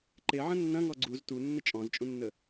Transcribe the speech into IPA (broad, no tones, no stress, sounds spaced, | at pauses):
ǃ e ʕ ə̃ nː ɐ̃ ŋ ɔ ɡ͡ǀ u z t u nː ə t͡ʃʼ ɔ̃ z t͡ʃʼ ũ nː ə